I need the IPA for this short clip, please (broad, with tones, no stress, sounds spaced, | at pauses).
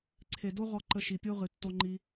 ǀʰ e˨ d o˦ ʁ ɔ˧ ǃ ə˧ ʃ i˨ pʲ o˦ ʁ ɨ˨ tː o˧ ŋ͡ǃ i˧